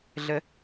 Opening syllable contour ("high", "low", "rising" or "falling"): high